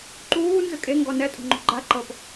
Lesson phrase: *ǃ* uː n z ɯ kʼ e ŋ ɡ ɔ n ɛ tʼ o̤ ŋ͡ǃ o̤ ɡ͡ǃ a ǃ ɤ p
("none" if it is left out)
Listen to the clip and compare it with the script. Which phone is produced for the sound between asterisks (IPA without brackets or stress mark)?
ǃ